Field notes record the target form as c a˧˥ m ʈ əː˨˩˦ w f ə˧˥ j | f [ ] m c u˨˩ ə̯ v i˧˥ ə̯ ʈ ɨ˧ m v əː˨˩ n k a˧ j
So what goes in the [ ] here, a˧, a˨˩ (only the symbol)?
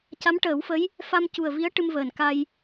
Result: a˧